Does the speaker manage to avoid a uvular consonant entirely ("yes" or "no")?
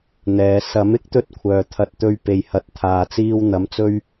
yes